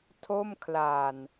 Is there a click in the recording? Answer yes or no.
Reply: no